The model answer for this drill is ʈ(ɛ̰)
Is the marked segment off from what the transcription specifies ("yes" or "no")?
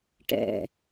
no